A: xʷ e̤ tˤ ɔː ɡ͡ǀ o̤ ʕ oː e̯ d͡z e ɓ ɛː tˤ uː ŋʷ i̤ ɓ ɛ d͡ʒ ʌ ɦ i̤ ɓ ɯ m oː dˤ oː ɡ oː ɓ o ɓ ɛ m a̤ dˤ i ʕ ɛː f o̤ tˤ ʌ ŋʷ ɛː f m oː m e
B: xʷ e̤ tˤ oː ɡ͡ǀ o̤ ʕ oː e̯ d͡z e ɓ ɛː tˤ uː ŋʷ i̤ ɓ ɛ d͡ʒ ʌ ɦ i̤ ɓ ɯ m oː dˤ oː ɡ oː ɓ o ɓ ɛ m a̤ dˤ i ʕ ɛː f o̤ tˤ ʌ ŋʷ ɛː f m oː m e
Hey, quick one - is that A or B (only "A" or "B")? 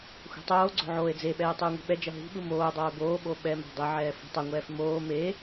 B